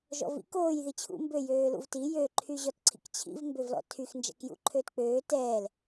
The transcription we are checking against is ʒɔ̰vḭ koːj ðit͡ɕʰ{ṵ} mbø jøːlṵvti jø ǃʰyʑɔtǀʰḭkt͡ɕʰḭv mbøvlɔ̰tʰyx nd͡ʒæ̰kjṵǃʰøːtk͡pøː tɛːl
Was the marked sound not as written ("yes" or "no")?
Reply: no